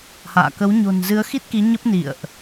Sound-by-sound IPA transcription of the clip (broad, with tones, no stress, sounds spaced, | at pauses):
h a̰ː˧˨ k ə˨˦ w ɲ o̤˨˩ n z ɨ˨˦ ə̯ x i˦˥ t̚ k i˨˦ ɲ ə˦˥ p̚ n ḭ˧˨ ə̯ ʔ